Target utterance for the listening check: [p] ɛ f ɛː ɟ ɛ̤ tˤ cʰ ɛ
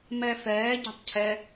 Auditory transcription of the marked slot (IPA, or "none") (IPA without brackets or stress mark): m